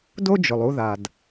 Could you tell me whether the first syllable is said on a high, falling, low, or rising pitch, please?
high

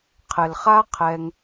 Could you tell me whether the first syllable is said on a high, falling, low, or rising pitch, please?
low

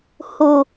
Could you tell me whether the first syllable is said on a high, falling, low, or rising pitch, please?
low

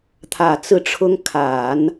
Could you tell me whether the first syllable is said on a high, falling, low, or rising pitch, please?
low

